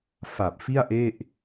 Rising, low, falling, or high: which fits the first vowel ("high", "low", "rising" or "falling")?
low